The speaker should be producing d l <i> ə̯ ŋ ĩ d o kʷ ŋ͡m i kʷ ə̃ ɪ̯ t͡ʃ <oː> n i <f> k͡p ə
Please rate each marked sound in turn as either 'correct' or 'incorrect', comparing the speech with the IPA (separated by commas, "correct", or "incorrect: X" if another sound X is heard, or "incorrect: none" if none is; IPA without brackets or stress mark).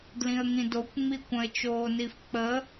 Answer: incorrect: ĩ, correct, correct